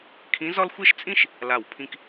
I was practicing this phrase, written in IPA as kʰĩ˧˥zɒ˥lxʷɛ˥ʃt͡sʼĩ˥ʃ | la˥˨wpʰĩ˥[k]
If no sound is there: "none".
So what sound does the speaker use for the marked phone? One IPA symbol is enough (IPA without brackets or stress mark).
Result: k